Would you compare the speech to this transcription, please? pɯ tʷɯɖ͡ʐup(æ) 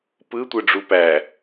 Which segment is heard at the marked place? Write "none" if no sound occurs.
æ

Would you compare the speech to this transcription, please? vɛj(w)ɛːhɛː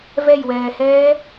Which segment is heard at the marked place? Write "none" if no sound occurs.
w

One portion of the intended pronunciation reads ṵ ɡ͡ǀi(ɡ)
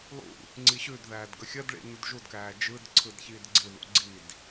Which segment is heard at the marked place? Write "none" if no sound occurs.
d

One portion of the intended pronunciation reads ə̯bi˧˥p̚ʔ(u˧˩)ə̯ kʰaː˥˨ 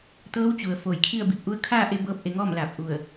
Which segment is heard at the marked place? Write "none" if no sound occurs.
u˧˥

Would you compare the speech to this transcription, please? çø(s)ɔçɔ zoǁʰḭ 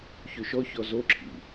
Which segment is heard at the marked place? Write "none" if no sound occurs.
ʃ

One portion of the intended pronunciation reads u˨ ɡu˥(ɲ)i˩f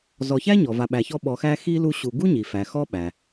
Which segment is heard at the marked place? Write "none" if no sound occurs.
ɲ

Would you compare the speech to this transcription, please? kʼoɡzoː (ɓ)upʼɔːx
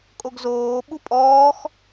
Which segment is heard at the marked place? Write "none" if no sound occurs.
ɓ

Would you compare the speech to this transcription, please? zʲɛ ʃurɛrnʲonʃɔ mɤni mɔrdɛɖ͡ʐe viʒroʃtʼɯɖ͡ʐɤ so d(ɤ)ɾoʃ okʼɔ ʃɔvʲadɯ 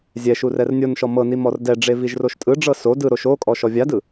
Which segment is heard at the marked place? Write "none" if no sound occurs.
ɯ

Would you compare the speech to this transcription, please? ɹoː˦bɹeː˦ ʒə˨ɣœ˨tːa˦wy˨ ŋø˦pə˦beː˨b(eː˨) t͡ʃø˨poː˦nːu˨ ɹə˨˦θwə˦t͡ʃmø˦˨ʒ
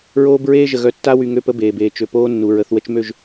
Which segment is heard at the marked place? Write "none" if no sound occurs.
eː˨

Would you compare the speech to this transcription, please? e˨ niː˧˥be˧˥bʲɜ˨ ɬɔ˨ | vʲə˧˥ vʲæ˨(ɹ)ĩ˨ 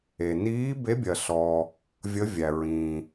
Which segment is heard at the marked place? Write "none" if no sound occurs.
ɹ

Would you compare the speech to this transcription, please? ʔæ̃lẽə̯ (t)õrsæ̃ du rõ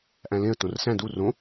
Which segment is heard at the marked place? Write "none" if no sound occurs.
t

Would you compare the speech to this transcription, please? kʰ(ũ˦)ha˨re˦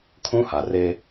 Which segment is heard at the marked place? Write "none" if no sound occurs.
ũ˦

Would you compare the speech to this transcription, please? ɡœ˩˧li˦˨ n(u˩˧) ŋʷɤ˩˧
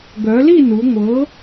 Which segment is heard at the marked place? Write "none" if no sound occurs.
u˩˧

